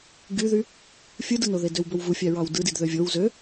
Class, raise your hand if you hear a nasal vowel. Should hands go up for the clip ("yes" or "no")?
no